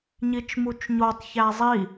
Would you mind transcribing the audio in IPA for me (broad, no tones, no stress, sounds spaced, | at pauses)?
ɲ i t͡ʃ m u t͡ʃ ɲ o tˤ ç æ zˤ i